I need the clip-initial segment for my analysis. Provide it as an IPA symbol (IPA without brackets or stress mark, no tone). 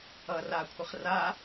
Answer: ʌ